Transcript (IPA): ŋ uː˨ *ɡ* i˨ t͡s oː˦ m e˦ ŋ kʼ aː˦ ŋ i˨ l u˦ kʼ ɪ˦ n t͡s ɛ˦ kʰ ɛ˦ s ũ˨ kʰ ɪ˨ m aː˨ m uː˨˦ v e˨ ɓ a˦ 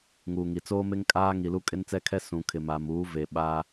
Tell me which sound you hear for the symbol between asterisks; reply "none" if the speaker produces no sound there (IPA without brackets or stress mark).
ŋ